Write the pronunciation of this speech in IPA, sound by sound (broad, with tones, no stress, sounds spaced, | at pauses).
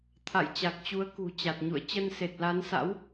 t̪ʰ a̰˧˨ j t͡ɕ a˨˩ k̚ t͡ɕ u˨˦ ə̯ k ṳ˨˩ t͡ɕ a˨˩ t̚ ɲ ṵ˧˨ ə̯ t͡ɕ ə˧ n s e˨˩ t̚ l a˨˦ n s a̰˧˥ w